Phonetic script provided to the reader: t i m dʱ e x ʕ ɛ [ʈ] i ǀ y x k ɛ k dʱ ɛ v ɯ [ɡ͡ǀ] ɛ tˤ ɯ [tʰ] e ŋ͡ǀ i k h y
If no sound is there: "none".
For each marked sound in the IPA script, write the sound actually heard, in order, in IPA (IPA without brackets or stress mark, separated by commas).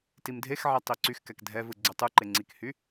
tˤ, ɡ͡ǀ, ǃ